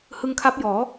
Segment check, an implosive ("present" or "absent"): absent